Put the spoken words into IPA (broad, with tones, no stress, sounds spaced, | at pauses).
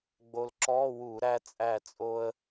ɡ͡b o˧ l ǁ ɔ˧˥˧ w u˧˩˧ ɾ æ˧ t͡sʼ æ˧˩ t͡sʼ o˧ ə̯